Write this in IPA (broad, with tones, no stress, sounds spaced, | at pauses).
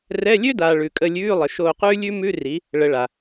r ɛ˧˥˧ lʲ ø˥ d aː˨ ɭ ʉ˨ kʼ ə˦˨ lʲ ʉː˧˥˧ lˠ ə˨ ʃ oː˦˨ q ʉː˥ lʲ ʉ˥ m ʉ˧˥˧ r i˨˦ | ɭ ə˨˦ ɭ a˨